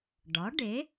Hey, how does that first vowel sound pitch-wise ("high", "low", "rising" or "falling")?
rising